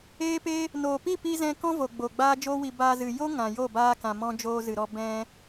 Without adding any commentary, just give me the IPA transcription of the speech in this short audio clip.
eː˦ p e˦ | n oː˨ p i˦˨ p i˧ z ɛ̃˦ k ɔ̃˦ v o˨ ɡ͡b o˨ ɡ͡b aː˦ d͡ʒ oː˦ w i˧ b aː˧ z ɨ˨ j o˦ ŋ ã˨ j o˦˨ b aː˧ k ã˨ m ɔ̃˧ d͡ʒ oː˧ z ɨ˨ ɾ ɔ˧ b ɛ̃˧

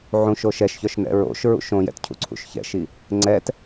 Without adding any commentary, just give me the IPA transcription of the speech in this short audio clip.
ʕ ũ ʃ o ʃ ɛ ʃ ç œ ʃ n ɛ̰ ɹ o̰ ʃ ɹ ṵ ʃ õ j ɛ̰ t cʰ ṵ ǀʰ ṵ ʃ ç ɛ̰ ʃ i | ŋ͡ǀ ɛ t

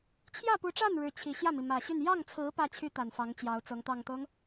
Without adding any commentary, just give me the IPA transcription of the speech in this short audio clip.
t͡ɕʰ j ä˥˩ p u˧˥ ʈ͡ʂ a˥˩ n ɻ ɻ̩˧˥ t͡ɕʰ i˨˩ ɕ j ä˥˩ m i˩ m ä˨˩ ɕ y˥˧ n j ɑ˥˩ ŋ t͡sʰ ɹ̩˧˥ p ä˥˩ t͡ɕʰ y˥ t̪ a˨˩ n f ɑ˧˥ ŋ t͡ɕ j ɑ˧˥ ʊ̯ t͡s ɤ˧˥ ŋ t̪ ɑ˨˩ ŋ t̪ ɤ˦ ŋ

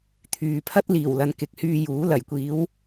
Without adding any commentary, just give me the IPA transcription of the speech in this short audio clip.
t̪ʰ yː˨ pʰ ɐ˥ t̚ l iː˨˩ w l ɐ˨ n k ɪ˨˥ k̚ h yː˧ j uː˨˥ l ɐ˨˩ j kʷ iː˨˥ w

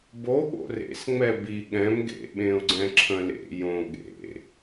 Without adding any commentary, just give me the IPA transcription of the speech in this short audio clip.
b o ɠ o̰ r ḛ s ŋ͡m ɛ b i ɠ ɛ̃ m ɡ ḛ ɓ ẽ ʊ̯ ɡ͡ǀ ɛ̃ ǁʰ ə̃ l ḛ j õ ɠ ḛ

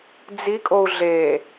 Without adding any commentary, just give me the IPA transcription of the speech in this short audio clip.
d͡z i kʼ o u̯ ɮ e

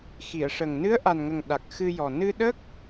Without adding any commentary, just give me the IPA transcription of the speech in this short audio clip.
x i˨˩˨ ə̯ ʂ ə˨˩ ŋ n ɨ˧˥ ə̯ ʔ a˨˩ n ŋ ə˨˩ ŋ ɗ a˨˩ k̚ x ɨ˧ j ɔ˨˩ n ɨ˧ ɗ ə˦˥ k̚

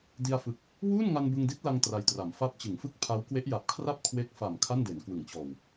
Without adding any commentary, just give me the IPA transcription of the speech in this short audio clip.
d i˧ a̯ f ɯ˨˩ k̚ | w uː˥˩ n ŋ a˧ n b ɯ˧ ŋ d i˦˥ t̚ l a˧ ŋ t r a˧ j t r a˩˦ m f a˦˥ p̚ t͡ɕ ɯ˩˦ ŋ f ɯ˥˩ k̚ pʰ a˦˥ w k w e˦˥ ʔ j a˨˩ p̚ kʰ r a˥˩ p̚ kʰ w e˦˥ k̚ f a˨˩ m kʰ a˥˩ n d e˩˦ n k w ɯ˩˦ ŋ t͡ɕ ɔː˨˩ w

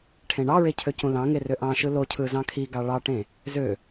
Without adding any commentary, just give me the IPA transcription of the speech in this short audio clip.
ʈʰ ẽ ɳ ɑ ɹ e cʰ ø c ũ l ɑ̃ ŋ e r ø ʔ ɑ̃ ʃ ɯ l o cʰ ɯ z ɑ̃ kʰ i ɡ ɑ ɭ ɑ ʈ ẽ | z ø

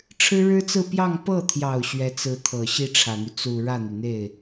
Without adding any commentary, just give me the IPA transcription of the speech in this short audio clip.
ʈ͡ʂʰ ɻ̩˥ ɻ ɻ̩˥ t͡s ɹ̩˥˧ p j ɑ˥˧ ŋ p ɤ˥˩ t̪ʰ j ɑ˨˩ ʊ̯ ɕ ɥ ɛ˧˥ t͡s ɹ̩˧˥ t̪ʰ ɤ˨˩ ɕ i˥˩ ʈ͡ʂʰ ä˨˩ n̪ y˦ t͡s u˨˩ ɻ ä˥˩ n̪ y˩ n̪ e˥˩ ɪ̯

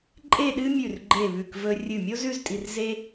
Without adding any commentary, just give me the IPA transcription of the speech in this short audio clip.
ǃʼ e˥˧ ɗ ɨ˥ mʲ ʉ˧˩ r ɡ͡ǃ e˧˩ β ʉ˧˩ k v ɵ˧ rʲ ɨ˧˩ mʲ o˥ z ʉ˥˧ z tʼ i˧ r z e˥

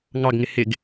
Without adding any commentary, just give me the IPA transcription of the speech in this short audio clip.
ŋ ɑ ɡ ŋ ɪ h ɪ ɡ

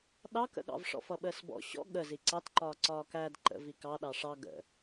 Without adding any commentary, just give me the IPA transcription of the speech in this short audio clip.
ɗ ɑ k ə̰ ɠ ɑ̰ v ʂ ɔ̰ f ʌ ɓ əː s b ɔ̰ ɕ ɔ̰ ɠ ə z i ǀ ɑ t ǃ ɒː ǀ ɒː k æ d ǃ ə̰ v i k ɑ ɗ ɑ ʂ ɑ ɡ ə̰

